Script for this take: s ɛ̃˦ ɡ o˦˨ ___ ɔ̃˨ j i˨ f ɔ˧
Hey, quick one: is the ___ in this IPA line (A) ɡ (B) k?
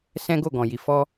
A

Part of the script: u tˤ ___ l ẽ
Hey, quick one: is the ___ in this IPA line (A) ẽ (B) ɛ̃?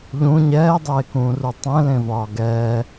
B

